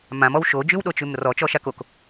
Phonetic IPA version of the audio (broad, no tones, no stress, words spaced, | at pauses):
mãmɔw ʃod͡ʒʉwɗot͡ʃʉm rɔt͡ʃɔʃak ok